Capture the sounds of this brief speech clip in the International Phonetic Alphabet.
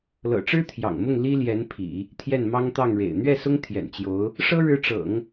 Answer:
l ɤ̰˨˩ ʈ͡ʂ ɻ̩˥ t̪ʰ j ɑ̰˨˩ ŋ m ʊ˥˩ ŋ l i˥ l j ɛ˧˥ n pʰ ḭ˨˩˦ | t̪ʰ j ɛ˥˩ n m ɑ˥ ŋ t̪ ɑ˥˩ ŋ ɻ ḛ˨˩ ɪ̯ n̪ ɥ ɛ˥˩ s ʊ˥ ŋ t̪ʰ j ɛ̰˨˩ n t͡ɕ j o˧˥ ʊ̯ | ʂ ɤ˥ ɻ ɻ̩˧˥ ʈ͡ʂ ɤ̰˨˩˦ ŋ

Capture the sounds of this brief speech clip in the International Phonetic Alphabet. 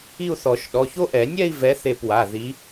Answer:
i˥˧ u̯ θ ɔ˨˩˦ ʃ ɗ ɔ˩˧˩ ç o˦˥ ʔ ɛ˨˩˦ nʲ ɛ˥˧ i̯ v ɛ˨˦ θ e˧˩ p w a˩˧˩ ð i˨˦

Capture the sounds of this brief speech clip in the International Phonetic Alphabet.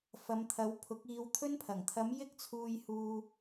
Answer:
f ɐ˨˧ m t̪ʰ ɐ˨˧ w pʰ ʊ˨˥ k̚ iː˧ w t̪ʰ ɵ˧ n pʰ ɐ˨˩ ŋ t̪ʰ ɐ˨˧ m j ɪ˥ k̚ t͡sʰ uː˧ j h uː˧

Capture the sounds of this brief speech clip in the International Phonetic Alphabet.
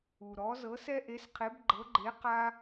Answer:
u˧ ɾ ɔ˧˥ z ɤ˧˥ s ɛ˥ ʔ e˧˥ s qʰ e˧˥ b ɡ͡ǃ ɤ˧˥ ɡ͡ǃ e˧˥ q a˥

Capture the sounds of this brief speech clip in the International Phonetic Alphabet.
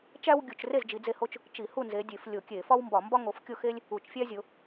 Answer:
t͡ʃ æ˥ w ɡʲ u˧˩˧ t͡ʃ r e˥˨ z d͡ʒ i˨˦ d͡z e˥˨ h o˥ t͡ʃ | t͡ʃ i˧˩˧ h u˥˨ n z e˨˦ dʲ e˧˩˧ f lʲ o˧˩˧ kʲ e˧˩˧ f ɒ˥ w m b ɒ˧˩˧ m b ɒ˥ ŋ o˨˦ f kʲ o˥˨ x e˥ lʲ | u˧˩˧ t͡ʃ fʲ æ˥ zʲ o˨˦

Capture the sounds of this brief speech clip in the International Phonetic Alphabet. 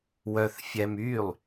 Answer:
w œ θ fʲ ɛ m y lˠ

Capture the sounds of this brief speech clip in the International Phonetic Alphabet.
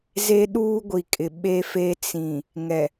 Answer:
z e˦ ɗ uː˦ ɡʷ i˨ kʼ ɪ˨ ɓ e˦ f e˦ t͡s ĩ˨ | ŋ ɛ˨

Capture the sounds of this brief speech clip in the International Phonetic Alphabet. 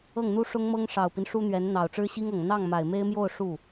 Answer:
ɤ˥˩ ŋ n̪ u˥ ʂ ʊ˥ ŋ m ɤ˥ ŋ ʂ ɑ˨˩ ʊ̯ p i˦ n ʂ u˥ n̪ ɥ ɛ˧˥ n n̪ ɑ˨˩ ʊ̯ ʈ͡ʂ ɻ̩˥ ɕ i˥ ŋ ɤ˨˩ ŋ n̪ ɑ˥˩ ŋ m a˨˩ ɪ̯ m e˥ ɪ̯ m j o˥˧ ʊ̯ ʂ u˥˩

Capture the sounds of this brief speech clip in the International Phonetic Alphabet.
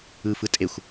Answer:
ɯ f ɯ tʼ e xʷ

